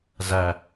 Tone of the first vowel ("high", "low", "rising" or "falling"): low